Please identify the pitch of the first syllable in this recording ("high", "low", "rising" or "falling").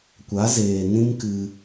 rising